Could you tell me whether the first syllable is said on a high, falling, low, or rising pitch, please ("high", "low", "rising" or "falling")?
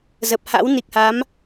low